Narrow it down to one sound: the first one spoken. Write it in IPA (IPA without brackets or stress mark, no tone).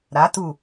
ɾ